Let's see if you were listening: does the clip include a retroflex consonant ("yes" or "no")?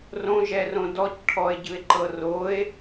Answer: yes